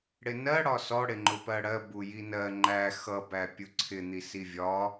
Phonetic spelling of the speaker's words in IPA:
ɽ ɪ n ɜ ɽ ɒ s ɔ ɽ ɪ ŋ͡ǃ ʊ p ɜ ɽ ɜ b u j i n ɜ ŋ͡ǃ æ x ʌ b æ pʲ ʊ ǀʰ ɪ n̪ i s i vʲ ɒ

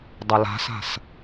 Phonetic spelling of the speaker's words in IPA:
dˤ ɐ l a̤ s a̤ s

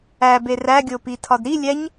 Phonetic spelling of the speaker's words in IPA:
æ b e r æ ɡʲ o p i tʰ ɒ d ɾ i lʲ æ ɲ

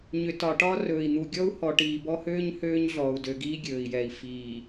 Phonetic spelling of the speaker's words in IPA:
ɲ ʏ˨ t ɒ˨ ʈ ɒ˦ r ɵː˨ i̯ n̪ u˨ ɡʲ ɔ˦ u̯ h ɔ˨ ʈ iː˨ b ɔ˦ h øː˦ ɲ h øː˦ ɲ ɮ ɔː˨ u̯ d ø˨ ɡ iː˦ ɡʲ ɵː˨ i̯ j ɛ˨ i̯ f iː˨

